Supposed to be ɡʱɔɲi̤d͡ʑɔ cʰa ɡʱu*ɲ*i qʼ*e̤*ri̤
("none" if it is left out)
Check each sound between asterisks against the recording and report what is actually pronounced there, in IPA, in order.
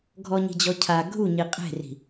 ɲ, e̤

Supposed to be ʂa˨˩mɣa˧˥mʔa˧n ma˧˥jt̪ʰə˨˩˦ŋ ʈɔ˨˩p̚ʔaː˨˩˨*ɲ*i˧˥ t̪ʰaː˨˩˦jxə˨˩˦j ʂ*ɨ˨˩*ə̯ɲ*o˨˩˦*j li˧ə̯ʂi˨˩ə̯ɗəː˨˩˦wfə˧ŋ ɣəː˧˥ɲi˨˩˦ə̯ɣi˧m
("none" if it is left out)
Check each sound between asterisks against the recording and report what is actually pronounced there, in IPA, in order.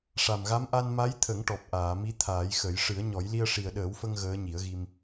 m, ɨ˨˩˦, ɔ˨˩˦

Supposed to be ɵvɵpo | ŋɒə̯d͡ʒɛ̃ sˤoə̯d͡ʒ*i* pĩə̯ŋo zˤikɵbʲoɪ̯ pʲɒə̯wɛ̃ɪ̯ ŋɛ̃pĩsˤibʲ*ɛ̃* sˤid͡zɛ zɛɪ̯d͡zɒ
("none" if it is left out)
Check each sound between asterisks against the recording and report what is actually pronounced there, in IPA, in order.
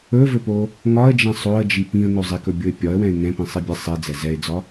i, ɛ

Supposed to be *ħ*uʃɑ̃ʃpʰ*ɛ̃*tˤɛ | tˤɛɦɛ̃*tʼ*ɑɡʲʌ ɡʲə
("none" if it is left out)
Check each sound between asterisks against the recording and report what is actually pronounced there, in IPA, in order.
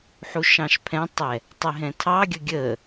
ħ, ɛ̃, tʰ

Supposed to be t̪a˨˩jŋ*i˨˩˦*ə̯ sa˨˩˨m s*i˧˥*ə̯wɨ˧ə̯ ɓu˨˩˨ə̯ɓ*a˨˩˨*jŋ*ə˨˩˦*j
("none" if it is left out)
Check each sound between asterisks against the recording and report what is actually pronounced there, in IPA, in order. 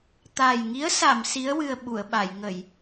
i˧˥, i˧˥, a˨˩˨, ə˨˩˨

